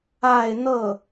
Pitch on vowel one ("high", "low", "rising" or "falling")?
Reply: falling